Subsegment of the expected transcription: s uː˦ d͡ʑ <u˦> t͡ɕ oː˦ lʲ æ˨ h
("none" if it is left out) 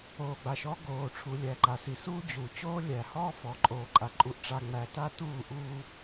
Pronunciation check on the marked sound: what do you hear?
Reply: u˨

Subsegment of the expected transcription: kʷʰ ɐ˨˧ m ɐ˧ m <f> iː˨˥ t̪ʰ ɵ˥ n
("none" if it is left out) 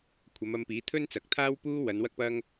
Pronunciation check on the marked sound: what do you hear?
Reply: p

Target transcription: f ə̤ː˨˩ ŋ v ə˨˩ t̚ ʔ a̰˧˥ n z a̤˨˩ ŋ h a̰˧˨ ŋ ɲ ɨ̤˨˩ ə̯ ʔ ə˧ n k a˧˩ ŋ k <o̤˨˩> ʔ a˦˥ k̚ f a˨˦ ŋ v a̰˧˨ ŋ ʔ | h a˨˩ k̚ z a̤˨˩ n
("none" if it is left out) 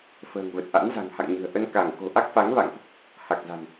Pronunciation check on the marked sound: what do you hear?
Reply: o̤˨˩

